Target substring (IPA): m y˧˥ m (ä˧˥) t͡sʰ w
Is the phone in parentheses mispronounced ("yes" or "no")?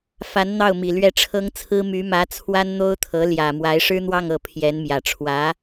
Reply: no